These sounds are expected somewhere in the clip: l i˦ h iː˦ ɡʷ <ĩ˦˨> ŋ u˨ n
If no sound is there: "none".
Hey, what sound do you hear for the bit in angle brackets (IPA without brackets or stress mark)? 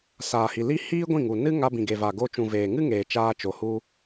ĩ˦˨